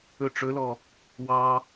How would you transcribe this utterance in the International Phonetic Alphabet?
ɵ ʈ͡ʂ ɵ l ɔ | w ɑ

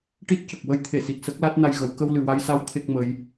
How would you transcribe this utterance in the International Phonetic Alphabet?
ʈ i˦˥ t̚ c ə˨˩ k̚ w ə˧˥ j t̪ʰ e˨˩˨ s i˨˩ t̚ s ə˦˥ k̚ l a˦˥ t̚ n a˧ j ɣ ə˨˩˦ w k ə˧ w l ɨ˨˩ w a˧ j s a˧˥ w t̪ʰ e˦˥ k̚ m ə˧˥ j

